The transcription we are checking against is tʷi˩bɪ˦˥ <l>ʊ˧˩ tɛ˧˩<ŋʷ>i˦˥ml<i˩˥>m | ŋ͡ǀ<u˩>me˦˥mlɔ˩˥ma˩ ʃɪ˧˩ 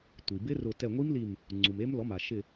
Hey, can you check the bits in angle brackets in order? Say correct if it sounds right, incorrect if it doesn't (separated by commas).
incorrect, correct, incorrect, correct